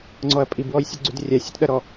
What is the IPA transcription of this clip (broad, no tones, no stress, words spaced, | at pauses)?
ŋ͡ǀɔɐ̯pʼibwɔj sʲuɡ͡ǀydrʲasʲɔt ɗɐɾɔ